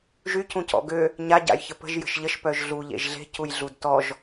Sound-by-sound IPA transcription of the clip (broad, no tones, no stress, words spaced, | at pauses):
ʒy cũcɔ̰ɡø | ɲa ɟa̰jçəpə̤ʒ jə̤ʃʎəʃ pœʒɮu ʎḛʒɮe̤ cujɮudtɔʒ